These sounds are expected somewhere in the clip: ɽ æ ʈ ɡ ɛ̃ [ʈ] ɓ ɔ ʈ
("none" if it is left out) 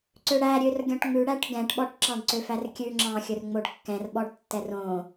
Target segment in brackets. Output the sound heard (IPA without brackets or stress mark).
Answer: ʈ